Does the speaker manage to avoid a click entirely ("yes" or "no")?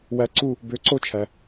no